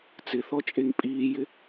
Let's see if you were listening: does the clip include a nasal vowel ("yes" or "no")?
no